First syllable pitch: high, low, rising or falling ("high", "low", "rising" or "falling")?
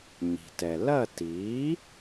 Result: low